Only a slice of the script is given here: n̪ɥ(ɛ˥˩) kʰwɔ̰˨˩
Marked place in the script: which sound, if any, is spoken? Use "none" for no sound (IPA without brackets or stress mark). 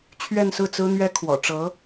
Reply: ɛ˥